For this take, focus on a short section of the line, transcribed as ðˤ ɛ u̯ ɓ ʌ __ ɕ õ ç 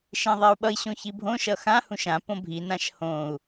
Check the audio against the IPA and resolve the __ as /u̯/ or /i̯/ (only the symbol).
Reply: i̯